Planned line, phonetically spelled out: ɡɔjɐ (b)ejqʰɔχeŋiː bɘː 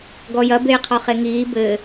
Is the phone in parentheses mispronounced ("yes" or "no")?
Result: no